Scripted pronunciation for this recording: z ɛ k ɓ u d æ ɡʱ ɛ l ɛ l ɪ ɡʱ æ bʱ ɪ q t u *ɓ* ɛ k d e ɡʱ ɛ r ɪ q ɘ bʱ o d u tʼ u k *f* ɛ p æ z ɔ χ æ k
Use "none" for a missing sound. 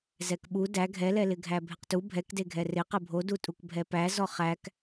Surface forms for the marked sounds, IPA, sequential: bʱ, bʱ

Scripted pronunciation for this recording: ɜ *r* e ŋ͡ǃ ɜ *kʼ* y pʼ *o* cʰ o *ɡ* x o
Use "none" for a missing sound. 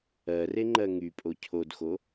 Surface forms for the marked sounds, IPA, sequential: r, ŋ, o, d

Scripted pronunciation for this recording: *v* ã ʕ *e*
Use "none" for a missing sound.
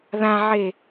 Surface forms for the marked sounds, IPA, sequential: ð, e

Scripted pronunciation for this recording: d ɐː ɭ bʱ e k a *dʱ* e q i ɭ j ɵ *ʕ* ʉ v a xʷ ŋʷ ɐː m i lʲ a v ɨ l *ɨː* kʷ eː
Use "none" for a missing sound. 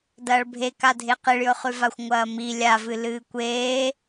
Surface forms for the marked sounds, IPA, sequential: dʱ, χ, ɨː

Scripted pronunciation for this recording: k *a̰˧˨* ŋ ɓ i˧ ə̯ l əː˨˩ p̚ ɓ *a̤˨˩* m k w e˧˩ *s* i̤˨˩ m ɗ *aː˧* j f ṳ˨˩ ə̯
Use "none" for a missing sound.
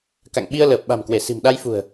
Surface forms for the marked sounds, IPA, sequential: a̰˧˨, a̤˨˩, s, a˧

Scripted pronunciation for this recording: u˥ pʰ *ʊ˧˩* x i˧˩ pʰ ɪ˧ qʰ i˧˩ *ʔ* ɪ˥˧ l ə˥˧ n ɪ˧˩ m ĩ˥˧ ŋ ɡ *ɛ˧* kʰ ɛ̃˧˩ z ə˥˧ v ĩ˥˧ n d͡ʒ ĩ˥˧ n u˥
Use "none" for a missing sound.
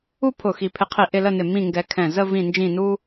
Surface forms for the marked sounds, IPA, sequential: ʊ˧˩, ʔ, ɛ˧

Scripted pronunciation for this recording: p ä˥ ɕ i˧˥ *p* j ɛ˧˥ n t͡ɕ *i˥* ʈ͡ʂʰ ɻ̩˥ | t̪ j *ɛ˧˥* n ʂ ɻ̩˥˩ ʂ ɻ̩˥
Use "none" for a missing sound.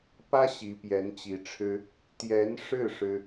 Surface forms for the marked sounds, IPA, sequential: p, i˧˥, ɛ˧˥

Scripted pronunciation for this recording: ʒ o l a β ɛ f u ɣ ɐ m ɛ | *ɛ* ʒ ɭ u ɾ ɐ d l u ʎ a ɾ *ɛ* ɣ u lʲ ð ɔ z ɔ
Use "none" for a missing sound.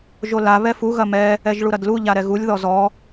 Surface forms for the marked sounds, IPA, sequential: ɛ, ɛ

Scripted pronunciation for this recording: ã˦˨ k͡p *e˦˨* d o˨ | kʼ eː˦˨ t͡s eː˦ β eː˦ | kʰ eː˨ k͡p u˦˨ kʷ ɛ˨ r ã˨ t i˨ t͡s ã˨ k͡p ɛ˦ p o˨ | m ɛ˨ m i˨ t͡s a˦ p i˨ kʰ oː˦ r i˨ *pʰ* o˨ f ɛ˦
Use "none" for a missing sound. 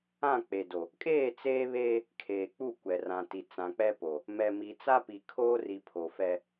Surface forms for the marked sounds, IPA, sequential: e˨, pʰ

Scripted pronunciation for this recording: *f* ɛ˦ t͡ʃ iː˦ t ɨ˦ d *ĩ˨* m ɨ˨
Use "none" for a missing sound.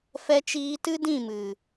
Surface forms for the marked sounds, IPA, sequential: f, ĩ˦˨

